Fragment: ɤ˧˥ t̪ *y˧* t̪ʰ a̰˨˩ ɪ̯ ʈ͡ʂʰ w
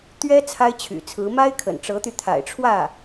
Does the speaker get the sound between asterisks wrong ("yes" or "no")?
no